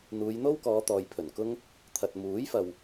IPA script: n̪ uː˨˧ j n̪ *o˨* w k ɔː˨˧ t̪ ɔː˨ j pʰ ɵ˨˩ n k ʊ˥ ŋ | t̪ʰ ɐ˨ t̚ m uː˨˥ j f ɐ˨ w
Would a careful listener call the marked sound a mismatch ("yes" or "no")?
yes